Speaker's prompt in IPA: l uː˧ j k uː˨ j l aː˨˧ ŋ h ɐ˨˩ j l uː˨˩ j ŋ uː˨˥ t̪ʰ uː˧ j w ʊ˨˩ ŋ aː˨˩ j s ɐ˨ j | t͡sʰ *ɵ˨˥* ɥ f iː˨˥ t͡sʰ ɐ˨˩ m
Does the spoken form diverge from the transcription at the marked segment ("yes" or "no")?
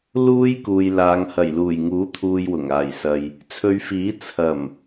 yes